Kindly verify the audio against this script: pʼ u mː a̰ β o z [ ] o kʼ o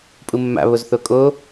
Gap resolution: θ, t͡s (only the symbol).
θ